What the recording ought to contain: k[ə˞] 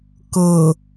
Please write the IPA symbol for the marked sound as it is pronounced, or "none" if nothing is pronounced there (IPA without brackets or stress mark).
ɤ